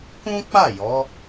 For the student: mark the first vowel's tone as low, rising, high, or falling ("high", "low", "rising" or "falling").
high